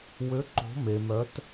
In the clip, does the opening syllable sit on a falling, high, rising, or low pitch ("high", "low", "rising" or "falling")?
rising